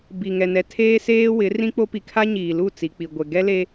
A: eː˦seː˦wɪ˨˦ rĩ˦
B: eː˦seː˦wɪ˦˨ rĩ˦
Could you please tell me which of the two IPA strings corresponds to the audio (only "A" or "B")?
A